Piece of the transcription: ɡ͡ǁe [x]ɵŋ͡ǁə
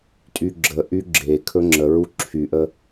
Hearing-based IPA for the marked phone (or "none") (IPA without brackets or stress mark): kʰ